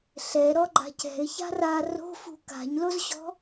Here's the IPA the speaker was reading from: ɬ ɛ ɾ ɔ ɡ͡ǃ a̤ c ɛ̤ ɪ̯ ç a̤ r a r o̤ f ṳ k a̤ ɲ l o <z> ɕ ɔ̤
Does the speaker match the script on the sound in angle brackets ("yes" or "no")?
yes